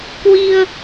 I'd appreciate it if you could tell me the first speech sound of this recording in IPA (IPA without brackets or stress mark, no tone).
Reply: k